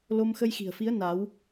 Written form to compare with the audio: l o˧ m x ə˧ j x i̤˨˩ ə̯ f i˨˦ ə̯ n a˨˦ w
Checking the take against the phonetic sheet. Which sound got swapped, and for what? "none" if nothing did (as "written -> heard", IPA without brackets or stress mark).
none